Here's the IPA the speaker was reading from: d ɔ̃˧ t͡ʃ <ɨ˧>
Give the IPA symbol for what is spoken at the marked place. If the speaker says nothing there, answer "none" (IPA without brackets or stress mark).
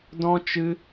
ɨ˧